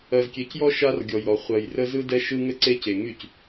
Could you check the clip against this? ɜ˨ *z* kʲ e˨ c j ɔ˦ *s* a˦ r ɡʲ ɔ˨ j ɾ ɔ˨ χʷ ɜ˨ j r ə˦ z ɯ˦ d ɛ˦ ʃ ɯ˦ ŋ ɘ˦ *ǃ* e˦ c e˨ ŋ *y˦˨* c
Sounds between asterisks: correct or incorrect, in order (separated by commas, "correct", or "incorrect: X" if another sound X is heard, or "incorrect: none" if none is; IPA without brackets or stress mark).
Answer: correct, incorrect: ʃ, incorrect: ǀ, correct